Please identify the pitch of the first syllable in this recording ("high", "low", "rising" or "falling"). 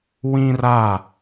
high